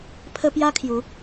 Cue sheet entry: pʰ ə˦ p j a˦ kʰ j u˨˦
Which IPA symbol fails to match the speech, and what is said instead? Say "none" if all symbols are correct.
none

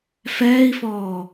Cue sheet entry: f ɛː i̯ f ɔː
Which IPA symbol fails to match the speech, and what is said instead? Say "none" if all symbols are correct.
none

